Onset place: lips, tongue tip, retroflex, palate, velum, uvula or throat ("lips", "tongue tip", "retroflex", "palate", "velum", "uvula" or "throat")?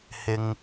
throat